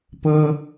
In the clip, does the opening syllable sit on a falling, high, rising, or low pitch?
high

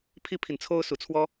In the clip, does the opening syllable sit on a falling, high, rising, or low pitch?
high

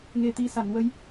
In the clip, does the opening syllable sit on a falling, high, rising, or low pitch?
low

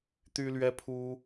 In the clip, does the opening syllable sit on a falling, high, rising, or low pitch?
high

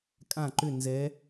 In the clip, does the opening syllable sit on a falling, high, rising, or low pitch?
falling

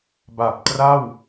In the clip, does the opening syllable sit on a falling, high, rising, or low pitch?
low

